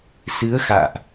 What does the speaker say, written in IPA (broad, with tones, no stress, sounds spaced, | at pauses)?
s ɨ˨˦ ə̯ x a̰ː˧˨ ʔ